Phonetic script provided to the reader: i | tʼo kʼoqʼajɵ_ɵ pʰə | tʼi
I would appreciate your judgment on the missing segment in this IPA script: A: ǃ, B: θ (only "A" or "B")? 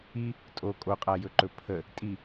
A